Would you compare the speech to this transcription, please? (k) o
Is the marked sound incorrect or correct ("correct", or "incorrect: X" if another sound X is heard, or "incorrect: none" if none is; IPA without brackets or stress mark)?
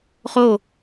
incorrect: χ